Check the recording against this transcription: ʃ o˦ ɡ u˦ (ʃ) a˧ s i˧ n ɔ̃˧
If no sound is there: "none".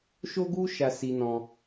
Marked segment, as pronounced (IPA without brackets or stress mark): ʃ